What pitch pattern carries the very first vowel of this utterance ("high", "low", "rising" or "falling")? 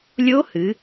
rising